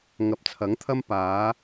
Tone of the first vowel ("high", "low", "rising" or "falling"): rising